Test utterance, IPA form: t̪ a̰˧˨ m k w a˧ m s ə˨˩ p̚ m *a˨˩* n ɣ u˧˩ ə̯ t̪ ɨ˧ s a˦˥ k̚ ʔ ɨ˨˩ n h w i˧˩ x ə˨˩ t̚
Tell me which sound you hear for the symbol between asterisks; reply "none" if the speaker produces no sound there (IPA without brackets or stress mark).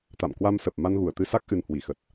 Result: a˧